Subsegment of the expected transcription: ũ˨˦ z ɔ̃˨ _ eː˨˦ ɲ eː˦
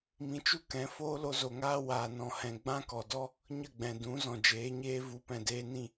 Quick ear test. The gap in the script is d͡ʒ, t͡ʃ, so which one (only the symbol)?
d͡ʒ